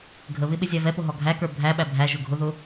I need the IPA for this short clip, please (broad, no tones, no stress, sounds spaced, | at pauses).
ɡʱ ə β ɪ ɓ ɪ zʲ æ v ɛ p ʊ ɦ ɔ ɡʱ æ k ə˞ bʱ æ ɓ æ bʱ æ ʒ ʊ ɡʱ ʊ ð ʊ